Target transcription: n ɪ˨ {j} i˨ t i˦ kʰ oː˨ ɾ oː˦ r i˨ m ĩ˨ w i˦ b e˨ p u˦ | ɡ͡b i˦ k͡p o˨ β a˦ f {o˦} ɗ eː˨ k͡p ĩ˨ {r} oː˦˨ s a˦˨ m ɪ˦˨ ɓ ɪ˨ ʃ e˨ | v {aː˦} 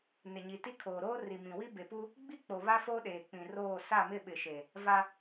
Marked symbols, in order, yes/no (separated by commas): no, yes, yes, no